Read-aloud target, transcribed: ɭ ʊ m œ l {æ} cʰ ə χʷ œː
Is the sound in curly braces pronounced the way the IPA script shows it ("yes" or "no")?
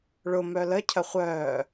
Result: no